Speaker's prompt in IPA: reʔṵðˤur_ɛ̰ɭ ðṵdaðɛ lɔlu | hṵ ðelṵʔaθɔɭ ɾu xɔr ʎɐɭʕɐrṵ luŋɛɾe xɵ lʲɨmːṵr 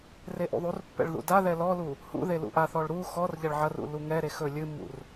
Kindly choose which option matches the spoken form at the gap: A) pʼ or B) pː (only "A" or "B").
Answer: B